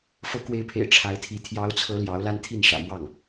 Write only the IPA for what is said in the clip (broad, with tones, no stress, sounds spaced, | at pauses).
f ɤ˧˥ k w e˧˥ ɪ̯ pʰ ḛ˨˩ ɪ̯ ʈ͡ʂʰ a˧˥ ɪ̯ t̪ʰ i˧˥ t̪ʰ j ɑ˧˥ ʊ̯ t͡sʰ ɤ˧˥ l j ɑ˧˥ ʊ̯ l a˥ n t̪ʰ i˥˩ n ʂ ä̰˨˩ m w ɑ˥˩ ŋ